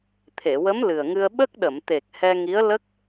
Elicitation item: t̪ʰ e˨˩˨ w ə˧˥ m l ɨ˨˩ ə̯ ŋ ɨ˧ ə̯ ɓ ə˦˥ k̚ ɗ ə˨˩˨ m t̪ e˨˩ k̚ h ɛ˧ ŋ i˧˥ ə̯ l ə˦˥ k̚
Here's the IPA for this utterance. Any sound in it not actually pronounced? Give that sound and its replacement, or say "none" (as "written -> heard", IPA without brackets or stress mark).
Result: none